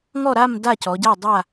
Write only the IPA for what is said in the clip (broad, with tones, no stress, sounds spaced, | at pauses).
ŋ ɔ˥˨ ɾ a˥˨ m d a˥˨ c ɔ˩˧ ɟ a˥˨ dˤ a˥˨